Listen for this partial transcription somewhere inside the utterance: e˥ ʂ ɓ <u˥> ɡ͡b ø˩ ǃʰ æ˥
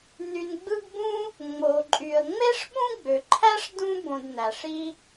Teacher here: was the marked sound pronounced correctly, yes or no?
no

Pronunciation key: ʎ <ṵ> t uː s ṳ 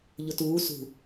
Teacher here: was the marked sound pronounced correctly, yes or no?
no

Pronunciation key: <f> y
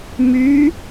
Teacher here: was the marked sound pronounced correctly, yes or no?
no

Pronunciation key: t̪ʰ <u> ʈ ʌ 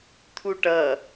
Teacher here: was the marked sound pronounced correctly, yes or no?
yes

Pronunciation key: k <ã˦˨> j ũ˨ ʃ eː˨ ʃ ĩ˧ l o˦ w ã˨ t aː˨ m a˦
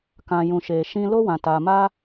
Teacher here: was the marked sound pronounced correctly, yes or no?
no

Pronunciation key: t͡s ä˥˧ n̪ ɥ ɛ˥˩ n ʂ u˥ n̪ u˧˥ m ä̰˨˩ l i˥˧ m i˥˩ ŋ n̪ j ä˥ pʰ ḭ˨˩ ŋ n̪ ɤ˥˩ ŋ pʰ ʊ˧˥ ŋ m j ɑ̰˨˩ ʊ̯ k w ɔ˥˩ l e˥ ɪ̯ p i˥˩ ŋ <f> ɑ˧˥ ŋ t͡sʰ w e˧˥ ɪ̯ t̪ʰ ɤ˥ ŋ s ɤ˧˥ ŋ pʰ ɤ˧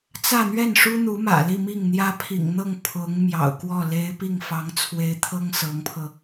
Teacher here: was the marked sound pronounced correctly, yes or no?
yes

